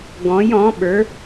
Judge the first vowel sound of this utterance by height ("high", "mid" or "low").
mid